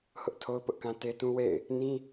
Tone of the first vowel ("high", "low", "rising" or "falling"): high